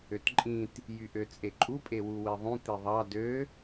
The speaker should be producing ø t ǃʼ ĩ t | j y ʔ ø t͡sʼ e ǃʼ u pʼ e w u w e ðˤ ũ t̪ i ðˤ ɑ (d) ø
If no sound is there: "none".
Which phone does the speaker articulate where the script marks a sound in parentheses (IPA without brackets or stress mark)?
d